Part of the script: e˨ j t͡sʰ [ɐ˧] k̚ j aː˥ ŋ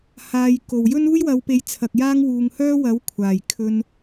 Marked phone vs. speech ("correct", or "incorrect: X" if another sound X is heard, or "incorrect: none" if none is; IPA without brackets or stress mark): incorrect: ɐ˨